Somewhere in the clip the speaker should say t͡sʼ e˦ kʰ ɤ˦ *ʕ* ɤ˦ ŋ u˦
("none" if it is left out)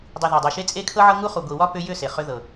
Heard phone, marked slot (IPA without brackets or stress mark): ʕ